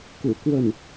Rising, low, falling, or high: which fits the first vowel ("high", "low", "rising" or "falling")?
low